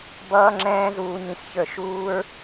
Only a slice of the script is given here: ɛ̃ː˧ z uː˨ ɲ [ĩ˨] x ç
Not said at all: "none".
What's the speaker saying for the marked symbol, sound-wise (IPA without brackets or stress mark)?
ĩ˨